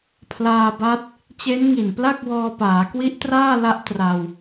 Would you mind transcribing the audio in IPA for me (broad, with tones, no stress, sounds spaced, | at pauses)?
pʰ l aː˧ b a˦˥ t̚ | t͡ɕ e˦˥ n ŋ i˨˩ n p l a˥˩ k̚ w ɔː˧ p aː˩˦ k w i˦˥ ʔ t r aː˥˩ l a˦˥ ʔ t r a˧ w